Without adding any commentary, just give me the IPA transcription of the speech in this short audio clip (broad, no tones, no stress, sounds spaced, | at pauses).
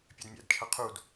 pʲ ɛ d mʲ æ̰ d t͡ʃʰ ʌ qʰ u d